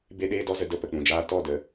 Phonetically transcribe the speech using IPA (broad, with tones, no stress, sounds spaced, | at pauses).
b e˦ ɗ eː˦ d ɔ˦ z ə˧ d ə˦˨ p ə˨ k͡p ũ˨ d͡ʒ aː˧ t ɔ˦˨ d ə˨˦